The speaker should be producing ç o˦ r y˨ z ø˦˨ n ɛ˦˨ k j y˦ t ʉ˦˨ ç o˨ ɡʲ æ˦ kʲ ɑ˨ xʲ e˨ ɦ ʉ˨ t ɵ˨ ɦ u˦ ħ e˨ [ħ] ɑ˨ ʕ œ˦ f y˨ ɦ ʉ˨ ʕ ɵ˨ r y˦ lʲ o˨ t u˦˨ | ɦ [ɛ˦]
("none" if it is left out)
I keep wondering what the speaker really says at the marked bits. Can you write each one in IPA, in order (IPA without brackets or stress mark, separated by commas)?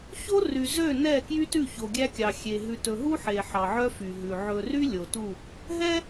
ħ, ɛ˦